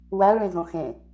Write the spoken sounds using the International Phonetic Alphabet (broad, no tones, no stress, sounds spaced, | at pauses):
w æ ɭ ẽ z õ x ẽ